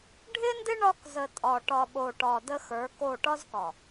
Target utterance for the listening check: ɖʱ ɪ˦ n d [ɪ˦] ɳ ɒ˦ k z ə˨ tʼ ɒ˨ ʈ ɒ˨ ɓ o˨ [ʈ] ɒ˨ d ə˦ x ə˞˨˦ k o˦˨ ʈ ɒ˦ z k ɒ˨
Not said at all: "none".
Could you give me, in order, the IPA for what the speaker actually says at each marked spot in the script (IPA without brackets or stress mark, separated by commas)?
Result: ɪ˦, ʈ